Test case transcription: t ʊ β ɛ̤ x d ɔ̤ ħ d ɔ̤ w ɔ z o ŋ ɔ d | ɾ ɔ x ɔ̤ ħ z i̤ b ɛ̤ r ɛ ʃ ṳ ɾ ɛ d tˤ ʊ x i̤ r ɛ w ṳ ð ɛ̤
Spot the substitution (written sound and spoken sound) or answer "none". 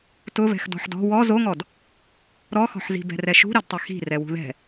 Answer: none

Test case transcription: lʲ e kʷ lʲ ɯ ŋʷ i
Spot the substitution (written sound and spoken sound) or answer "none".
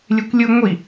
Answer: none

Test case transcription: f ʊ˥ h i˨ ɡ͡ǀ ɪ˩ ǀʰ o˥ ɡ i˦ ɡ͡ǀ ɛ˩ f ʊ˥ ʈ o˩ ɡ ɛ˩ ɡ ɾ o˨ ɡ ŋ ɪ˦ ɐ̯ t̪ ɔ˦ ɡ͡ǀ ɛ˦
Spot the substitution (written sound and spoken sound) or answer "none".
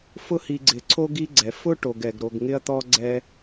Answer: none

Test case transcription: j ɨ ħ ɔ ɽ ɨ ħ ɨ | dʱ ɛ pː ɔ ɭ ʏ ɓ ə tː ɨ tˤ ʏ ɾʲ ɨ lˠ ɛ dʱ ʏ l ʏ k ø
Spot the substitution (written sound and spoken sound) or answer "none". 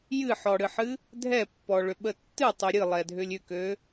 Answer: l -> lʲ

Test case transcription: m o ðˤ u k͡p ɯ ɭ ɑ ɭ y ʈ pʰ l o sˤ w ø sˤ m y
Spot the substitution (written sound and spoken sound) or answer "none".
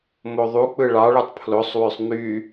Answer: ʈ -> tˤ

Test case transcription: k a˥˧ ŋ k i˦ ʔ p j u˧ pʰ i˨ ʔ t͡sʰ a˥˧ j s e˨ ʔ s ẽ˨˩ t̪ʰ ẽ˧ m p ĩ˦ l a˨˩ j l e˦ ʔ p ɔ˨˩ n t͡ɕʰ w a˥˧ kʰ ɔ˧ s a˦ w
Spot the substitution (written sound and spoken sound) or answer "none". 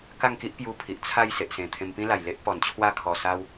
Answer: none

